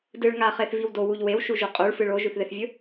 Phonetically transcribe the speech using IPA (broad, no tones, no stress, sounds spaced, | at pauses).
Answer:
d ɨ ɭ ŋ a χ e θ v i w d o w u ʎ w e w ʃ u ʒ u qʼ u ɭ f ɨ ɭ o ʒ ʉ θ ð e θ vʲ ɵ